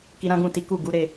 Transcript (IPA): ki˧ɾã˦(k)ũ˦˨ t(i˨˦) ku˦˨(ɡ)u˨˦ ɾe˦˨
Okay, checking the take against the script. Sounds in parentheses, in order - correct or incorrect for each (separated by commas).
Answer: incorrect, correct, correct